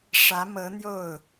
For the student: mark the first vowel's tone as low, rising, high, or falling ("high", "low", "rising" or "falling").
rising